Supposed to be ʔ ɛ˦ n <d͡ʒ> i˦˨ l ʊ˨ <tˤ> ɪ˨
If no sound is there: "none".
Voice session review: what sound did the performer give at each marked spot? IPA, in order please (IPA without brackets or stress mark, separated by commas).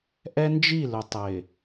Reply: d͡ʒ, tˤ